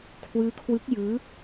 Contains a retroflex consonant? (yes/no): no